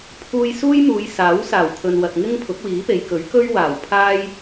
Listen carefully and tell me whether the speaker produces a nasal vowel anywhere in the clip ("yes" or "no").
no